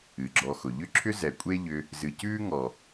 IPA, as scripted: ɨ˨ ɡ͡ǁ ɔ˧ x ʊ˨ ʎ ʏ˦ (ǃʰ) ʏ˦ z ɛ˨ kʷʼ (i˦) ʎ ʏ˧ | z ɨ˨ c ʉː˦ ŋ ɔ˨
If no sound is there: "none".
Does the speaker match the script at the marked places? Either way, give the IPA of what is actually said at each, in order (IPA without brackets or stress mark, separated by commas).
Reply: ǁʰ, e˦